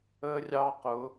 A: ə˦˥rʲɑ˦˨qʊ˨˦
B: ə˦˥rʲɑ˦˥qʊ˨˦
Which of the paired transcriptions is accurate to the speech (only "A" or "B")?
B